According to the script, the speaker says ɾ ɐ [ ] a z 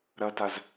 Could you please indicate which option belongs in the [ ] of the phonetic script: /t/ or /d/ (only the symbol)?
t